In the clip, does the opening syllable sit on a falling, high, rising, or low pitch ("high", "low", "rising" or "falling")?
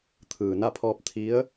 low